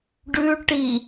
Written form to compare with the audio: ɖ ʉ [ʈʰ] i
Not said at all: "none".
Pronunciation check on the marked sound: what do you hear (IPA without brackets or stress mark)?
ʈ